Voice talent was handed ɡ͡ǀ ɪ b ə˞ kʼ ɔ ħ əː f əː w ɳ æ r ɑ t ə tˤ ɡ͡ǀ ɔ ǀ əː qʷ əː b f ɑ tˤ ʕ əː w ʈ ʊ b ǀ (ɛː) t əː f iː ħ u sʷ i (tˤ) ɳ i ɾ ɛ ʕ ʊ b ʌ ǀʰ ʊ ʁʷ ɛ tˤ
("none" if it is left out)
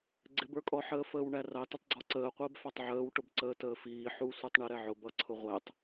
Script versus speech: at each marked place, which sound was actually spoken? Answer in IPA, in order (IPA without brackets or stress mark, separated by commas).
əː, tˤ